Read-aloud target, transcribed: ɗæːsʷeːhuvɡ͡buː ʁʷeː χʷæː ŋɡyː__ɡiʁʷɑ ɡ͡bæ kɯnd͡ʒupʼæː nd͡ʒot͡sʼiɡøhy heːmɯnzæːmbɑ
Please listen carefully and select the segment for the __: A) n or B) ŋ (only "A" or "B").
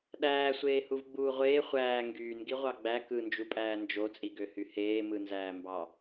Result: A